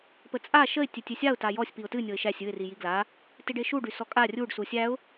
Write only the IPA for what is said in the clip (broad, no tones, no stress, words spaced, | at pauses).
pət͡sʼa ʃəɪ̯ tʲetʲesʲaʊ̯ tajɔsʲ piʊ̯tɨ nʲɤɪ̯ʃæsʲ ɨɪ̯ rijiɡla | tiɖeʃu ɖysɔkʼa rʲuɖ susʲæʊ̯